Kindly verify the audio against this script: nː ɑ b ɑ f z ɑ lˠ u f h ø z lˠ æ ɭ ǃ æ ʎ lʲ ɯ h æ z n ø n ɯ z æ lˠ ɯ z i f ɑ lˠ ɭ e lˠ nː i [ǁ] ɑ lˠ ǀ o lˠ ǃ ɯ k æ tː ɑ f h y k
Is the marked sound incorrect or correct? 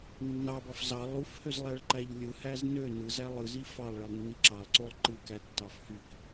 correct